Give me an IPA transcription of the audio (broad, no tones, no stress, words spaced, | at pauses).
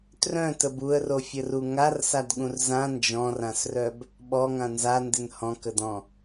trœ̃təb uə̯rofʲəru ŋarsadɠũr zã nd͡ʒɔ̃rãsrœb | ɓɔŋã nzandɪn hɔ̃kədɔ̃